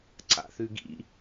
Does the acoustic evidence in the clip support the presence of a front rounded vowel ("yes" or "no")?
no